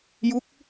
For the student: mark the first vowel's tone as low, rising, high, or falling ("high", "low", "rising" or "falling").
rising